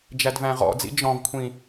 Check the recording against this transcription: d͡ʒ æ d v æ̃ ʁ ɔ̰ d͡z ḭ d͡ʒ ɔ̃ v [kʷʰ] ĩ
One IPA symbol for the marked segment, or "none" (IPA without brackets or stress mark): kʷʰ